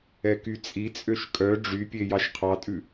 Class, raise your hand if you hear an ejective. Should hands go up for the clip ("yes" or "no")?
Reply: yes